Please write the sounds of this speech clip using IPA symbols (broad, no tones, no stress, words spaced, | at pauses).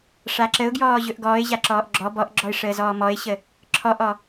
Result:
ʂaǁəʊ̯ ɡjɔːʑɵʔɡɔːɪ̯ ʑaǁɔːʔɡ͡ǁɔ bɔʔɡ͡ǁɔɪ̯ ʂəːzɔːmɔɪ̯ɕə | ǁʰɔʔɔ